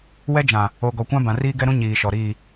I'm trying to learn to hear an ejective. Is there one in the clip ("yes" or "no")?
no